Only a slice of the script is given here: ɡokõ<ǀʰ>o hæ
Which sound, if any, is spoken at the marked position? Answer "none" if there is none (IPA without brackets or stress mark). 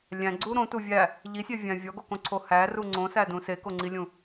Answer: ǀʰ